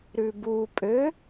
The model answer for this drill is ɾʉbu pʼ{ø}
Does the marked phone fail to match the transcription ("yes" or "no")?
no